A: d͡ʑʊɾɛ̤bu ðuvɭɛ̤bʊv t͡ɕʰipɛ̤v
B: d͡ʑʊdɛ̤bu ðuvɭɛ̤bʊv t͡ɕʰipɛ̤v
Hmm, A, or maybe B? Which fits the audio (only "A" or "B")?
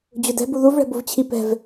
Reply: B